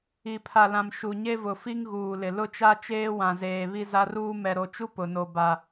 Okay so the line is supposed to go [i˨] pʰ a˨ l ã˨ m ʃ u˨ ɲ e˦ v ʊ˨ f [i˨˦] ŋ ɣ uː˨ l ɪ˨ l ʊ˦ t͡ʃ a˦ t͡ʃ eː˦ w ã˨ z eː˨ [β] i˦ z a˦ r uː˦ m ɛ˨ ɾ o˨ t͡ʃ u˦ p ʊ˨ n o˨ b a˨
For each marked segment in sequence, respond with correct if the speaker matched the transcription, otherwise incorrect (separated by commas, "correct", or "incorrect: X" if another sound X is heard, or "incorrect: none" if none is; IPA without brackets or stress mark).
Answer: correct, incorrect: i˦, correct